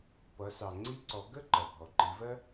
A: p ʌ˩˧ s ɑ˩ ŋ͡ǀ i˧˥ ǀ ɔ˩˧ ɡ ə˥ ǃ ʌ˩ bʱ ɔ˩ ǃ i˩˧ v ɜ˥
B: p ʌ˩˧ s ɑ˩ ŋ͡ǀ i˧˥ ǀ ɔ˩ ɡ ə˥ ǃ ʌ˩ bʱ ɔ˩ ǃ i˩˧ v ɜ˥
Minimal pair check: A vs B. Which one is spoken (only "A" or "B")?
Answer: A